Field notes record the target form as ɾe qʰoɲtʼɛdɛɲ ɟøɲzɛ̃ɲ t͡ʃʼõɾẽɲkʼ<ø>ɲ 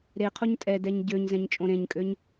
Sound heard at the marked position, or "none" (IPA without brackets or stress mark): ø